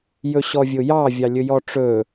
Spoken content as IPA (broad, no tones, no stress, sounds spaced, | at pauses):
j ɵ ɕ ɔ vʲ ʊ j ɑ vʲ ɑ lʲ ɵ j ɔ ʈ͡ʂ ɵ